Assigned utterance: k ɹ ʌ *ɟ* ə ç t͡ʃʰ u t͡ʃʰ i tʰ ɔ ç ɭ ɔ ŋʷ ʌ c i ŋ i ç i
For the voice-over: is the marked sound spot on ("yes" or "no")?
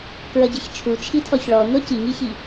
yes